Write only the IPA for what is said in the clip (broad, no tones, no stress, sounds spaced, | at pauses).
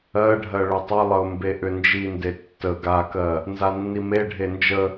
ɜ ɖʱ ɜ ɭ ʏ tˤ ə lˠ ə ʊ̯ m b e ʔ ʏ n d͡ʒ i n d e tː ə ɡ a k ɜ | n z a nː i m e ɖʱ e n d͡ʒ ə